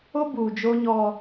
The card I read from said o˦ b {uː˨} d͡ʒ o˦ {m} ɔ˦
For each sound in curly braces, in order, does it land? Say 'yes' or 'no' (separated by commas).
yes, no